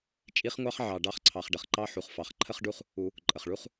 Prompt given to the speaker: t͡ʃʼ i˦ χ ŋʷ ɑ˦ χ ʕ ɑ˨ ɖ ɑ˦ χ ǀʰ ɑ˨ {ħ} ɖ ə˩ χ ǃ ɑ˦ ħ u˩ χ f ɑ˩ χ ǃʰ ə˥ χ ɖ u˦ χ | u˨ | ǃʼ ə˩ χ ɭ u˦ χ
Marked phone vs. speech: incorrect: χ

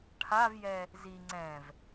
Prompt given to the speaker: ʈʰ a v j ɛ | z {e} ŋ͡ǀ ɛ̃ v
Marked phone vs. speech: incorrect: i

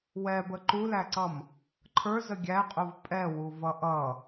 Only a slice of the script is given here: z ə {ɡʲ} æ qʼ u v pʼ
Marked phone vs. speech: correct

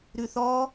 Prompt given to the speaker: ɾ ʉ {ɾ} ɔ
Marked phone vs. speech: incorrect: θ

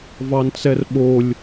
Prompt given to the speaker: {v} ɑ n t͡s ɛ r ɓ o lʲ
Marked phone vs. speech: correct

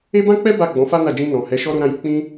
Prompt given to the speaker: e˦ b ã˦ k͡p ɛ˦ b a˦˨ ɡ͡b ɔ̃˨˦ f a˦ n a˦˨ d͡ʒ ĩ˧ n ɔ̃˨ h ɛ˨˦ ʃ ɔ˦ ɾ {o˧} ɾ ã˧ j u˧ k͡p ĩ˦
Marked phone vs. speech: correct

